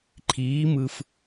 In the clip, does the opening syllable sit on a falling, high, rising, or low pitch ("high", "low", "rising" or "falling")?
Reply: rising